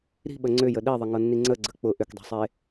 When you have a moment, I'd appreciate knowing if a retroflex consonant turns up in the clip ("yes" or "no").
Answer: no